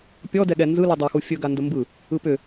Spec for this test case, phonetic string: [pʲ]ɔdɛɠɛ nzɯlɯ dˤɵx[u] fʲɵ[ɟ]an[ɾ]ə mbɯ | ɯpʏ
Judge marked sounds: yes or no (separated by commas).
yes, yes, no, no